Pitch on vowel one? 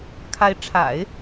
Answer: rising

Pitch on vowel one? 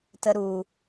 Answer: low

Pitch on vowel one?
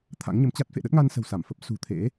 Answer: rising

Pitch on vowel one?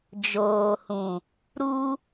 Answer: low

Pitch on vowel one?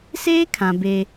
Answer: high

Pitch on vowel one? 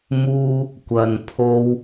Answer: high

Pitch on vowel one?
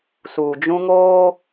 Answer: low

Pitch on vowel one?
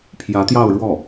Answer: rising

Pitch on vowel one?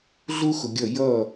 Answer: high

